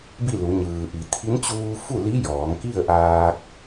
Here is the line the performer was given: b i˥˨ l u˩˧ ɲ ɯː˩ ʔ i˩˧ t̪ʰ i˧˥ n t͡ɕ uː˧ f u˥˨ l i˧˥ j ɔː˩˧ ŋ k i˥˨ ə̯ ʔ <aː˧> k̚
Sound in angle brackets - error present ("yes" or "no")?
no